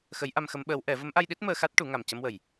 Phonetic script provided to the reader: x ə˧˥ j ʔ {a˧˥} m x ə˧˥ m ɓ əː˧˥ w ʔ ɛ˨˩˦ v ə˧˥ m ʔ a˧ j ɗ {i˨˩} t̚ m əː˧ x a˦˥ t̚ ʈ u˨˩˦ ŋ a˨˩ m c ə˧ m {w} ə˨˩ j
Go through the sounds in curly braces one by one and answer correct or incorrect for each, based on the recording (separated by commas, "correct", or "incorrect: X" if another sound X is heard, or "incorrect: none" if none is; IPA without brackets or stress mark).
incorrect: a˧, incorrect: i˦˥, correct